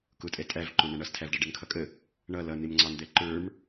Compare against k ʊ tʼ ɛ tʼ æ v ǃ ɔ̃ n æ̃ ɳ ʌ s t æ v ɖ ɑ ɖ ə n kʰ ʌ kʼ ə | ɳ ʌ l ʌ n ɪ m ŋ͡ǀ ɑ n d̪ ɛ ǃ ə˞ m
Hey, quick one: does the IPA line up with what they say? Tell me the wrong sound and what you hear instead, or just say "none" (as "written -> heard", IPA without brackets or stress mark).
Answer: t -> tʰ